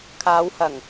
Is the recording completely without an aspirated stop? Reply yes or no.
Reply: no